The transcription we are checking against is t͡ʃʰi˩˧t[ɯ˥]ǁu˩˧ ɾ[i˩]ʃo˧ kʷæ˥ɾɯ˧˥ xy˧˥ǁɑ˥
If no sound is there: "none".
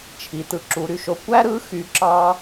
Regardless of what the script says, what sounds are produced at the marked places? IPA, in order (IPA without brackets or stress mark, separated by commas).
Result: ɯ˩, y˩